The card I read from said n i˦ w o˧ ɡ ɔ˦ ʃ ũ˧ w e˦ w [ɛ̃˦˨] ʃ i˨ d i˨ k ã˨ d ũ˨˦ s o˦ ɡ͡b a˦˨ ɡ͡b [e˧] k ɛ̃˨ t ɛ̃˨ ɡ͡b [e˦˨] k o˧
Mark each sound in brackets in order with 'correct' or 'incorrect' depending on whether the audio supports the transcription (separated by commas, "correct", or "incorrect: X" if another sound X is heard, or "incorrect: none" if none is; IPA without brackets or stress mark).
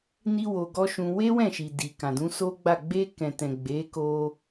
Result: correct, correct, incorrect: e˨˦